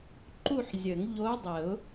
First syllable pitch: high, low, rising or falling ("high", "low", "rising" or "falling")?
falling